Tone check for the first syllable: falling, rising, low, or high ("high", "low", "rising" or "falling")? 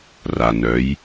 low